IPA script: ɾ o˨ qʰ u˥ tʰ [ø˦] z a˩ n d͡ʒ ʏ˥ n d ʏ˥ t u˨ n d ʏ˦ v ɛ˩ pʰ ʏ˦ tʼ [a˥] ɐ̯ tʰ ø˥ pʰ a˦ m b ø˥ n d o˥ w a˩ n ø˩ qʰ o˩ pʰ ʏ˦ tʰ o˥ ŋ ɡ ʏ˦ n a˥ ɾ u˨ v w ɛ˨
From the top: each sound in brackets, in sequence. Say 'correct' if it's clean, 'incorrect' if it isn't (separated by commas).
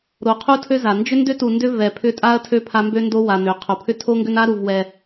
incorrect, correct